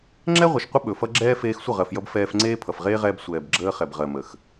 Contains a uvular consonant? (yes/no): yes